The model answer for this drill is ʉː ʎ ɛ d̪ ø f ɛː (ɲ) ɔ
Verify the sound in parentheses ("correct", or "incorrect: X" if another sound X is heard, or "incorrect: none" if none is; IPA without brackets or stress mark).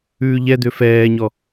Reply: correct